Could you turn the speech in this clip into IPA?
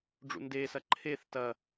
ɖ͡ʐ ṵ n d e s ɐ ǃʰ e θ t ɐ

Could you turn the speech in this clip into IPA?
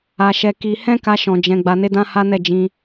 a˦ ʃ ɛ˦ k i˦ h ɛ̃˦ k a˧ ʃ ɔ̃˧ d͡ʒ ɛ̃˧ ɡ͡b a˧ n e˦ d ã˦ h a˦ n ɛ˦˨ d͡ʒ ĩ˧

